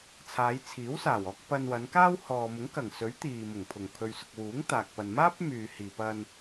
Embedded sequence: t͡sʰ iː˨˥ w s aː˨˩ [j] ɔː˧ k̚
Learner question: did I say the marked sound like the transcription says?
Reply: no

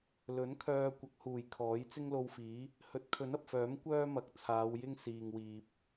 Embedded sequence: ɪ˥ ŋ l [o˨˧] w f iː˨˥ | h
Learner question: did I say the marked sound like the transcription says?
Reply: no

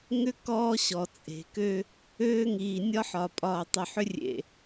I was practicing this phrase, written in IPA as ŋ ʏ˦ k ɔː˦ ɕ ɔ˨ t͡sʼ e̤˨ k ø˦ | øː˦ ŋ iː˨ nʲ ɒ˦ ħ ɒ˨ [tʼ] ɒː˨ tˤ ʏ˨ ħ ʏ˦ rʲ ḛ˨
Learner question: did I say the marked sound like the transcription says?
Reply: no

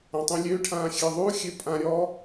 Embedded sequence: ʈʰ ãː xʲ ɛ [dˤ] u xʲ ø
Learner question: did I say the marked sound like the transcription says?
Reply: no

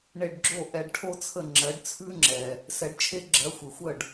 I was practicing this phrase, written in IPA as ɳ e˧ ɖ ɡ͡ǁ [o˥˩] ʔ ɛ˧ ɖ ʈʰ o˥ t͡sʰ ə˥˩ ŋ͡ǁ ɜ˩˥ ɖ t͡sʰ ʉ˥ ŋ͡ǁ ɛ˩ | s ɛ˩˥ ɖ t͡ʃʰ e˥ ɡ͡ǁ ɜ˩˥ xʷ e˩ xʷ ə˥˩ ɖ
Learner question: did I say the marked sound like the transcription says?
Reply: yes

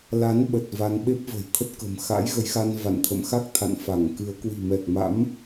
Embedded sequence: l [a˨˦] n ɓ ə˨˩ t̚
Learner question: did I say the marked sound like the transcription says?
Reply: yes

